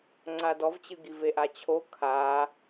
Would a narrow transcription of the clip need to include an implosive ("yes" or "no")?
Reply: no